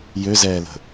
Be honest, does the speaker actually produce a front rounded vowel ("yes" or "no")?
yes